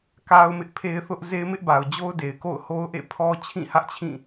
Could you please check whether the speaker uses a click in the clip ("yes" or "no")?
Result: no